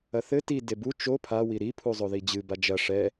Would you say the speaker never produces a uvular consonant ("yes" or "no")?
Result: yes